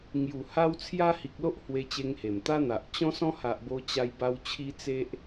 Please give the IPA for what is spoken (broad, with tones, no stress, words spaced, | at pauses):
ŋju˨˩ha˦w t͡sʰja˦hi˨k̚lo˦ʔ hwe˧t͡ɕe˧ŋhe˨˩mt̪a˦ n̪a˨ʔ t͡ɕɔ̃˦sɔ̃˦ha˨ʔ bo˧t͡ɕa˧j ba˧w t͡ɕʰi˦t͡se˦ʔ